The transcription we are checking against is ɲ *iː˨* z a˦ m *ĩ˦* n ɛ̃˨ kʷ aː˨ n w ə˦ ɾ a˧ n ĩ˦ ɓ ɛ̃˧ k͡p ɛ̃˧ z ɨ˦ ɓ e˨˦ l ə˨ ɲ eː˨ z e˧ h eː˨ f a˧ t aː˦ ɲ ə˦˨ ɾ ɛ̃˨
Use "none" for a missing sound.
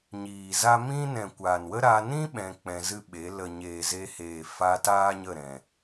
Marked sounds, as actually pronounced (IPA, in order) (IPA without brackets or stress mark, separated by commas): iː˨, ĩ˦